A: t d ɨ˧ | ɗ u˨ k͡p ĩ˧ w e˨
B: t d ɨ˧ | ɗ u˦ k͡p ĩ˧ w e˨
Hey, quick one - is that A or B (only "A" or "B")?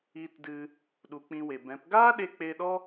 A